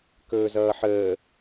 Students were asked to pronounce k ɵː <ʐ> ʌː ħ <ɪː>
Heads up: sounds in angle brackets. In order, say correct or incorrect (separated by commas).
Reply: incorrect, incorrect